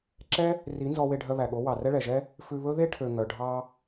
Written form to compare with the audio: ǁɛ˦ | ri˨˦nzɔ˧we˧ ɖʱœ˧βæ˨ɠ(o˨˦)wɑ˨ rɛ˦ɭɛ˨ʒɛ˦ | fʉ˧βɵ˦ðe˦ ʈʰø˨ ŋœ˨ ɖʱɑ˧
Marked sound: correct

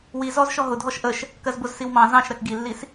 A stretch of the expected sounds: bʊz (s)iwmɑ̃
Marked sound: correct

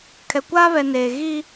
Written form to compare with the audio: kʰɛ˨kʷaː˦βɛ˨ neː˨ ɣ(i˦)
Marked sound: correct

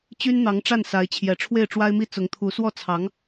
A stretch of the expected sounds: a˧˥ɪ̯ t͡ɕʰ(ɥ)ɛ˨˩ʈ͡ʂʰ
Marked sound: incorrect: j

